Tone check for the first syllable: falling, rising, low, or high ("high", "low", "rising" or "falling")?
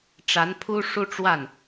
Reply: rising